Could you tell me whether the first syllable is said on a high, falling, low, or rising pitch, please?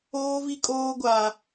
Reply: high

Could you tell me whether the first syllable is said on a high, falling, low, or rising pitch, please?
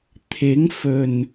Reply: rising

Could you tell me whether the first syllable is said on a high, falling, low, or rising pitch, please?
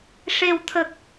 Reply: low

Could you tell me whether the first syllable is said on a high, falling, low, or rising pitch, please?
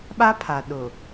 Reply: high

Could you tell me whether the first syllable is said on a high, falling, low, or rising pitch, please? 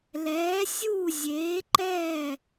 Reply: rising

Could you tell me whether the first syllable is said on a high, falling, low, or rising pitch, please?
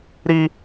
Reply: high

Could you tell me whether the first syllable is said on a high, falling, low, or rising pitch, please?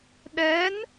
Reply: rising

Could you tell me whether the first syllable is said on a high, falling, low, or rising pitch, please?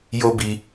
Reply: high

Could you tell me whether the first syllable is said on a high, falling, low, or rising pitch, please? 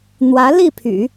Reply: rising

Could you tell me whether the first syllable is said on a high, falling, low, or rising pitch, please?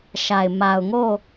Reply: low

